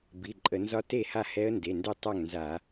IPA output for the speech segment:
bi˩˧˩ǃʼə˧˩˧nzɒ˦˥ te˥˨ha˥˨hɛ˦˥ə̯ nde˩˧˩ndɛ˥˨tˤa˥˨ŋnza˧˩˧

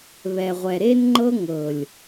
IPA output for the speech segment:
βɛ˨ʁʷɛ˨ ɾe˦nŋ͡ǃɤ˦ŋɤ˨lʲ

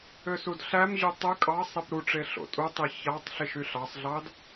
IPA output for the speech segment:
øsudɬæmʑy tˤɯ kʼɑ sˤipɾuʈ͡ʂe ɬo̰tʼutˤi çɑtˤ ɬiʃyɬɑsˤɮɑd

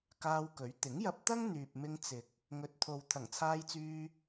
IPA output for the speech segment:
kaː˧wkɵ˨˥ɥ t̪ɪ˨˥ŋ jɐ˧p̚t̪ɐ˥ŋ n̪yː˨p̚mɪ˧ŋ t͡sɪ˨k̚ | ŋɵ˨t̚t̪ʰo˨w t̪ʰɐ˨˩ŋt͡sʰaː˧jt͡syː˧

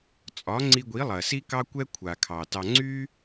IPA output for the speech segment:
t͡sʼɒ˨˦ŋ͡ǀi˧ɡʷi˨˦lˠɐ˨ si˦kɑ˦kʷɛ˦ kʷʰa˨ kʰɑ˨tɑ˧ ŋ͡ǀy˦

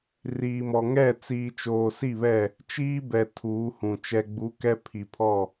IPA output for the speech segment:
riː˨mɔ˨ ŋɛ˦˨ t͡siː˨ t͡ʃoː˨si˦˨βɛ˦˨ | t͡ʃiː˦bɛ˨ tʰuː˨˦hũ˨ t͡ʃɛ˨ɡ͡bu˨˦ kɛ˦ pʰi˨pʰɔ˦˨

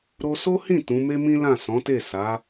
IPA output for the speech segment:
ɾo˧so˦hĩ˦˨ tũ˨˦me˦mĩ˦lã˦˨ sɔ̃˨˦te˦˨ sa˨˦

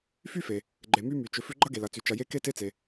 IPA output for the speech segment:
fy˥fe˩ | ɡ͡ǃe˩my˦ my˩t͡ʃʏ˨fʏ˦ ɡ͡ǃɐ˥ɡe˩lɐ˩t͡sy˩ t͡ʃɐ˨je˦ ke˥te˦t͡se˩

